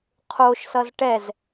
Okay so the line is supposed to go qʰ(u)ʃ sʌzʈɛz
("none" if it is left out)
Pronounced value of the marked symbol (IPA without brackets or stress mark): o